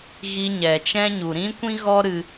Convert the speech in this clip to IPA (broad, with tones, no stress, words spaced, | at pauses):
ɣi˧ɲɛ˨t͡ʃɛ̃˦ ɲu˨ɾĩ˦kʷĩ˦ɣɔ˦ ɾɨ˧